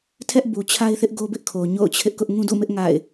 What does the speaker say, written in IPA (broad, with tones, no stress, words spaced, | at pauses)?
tʰɛ˦ʔ bu˨t͡ɕʰa˦ɪ̯θɪ˦ʔ ɡo˦bɪ˦ʔkʰo˨ ɲo̰˦˨ʊ̯t͡ɕʰɪ˦ʔkʊ˦ʔ ŋũ˦dṵ˦˨mɪ˦ʔ ŋa̰˦˨ɪ̯